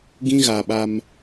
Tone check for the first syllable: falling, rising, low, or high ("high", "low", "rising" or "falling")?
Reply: high